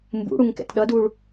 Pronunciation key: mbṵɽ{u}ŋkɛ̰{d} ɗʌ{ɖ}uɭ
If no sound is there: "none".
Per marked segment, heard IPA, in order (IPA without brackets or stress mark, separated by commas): u, t, d